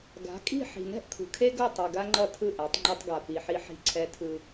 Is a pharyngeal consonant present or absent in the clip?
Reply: present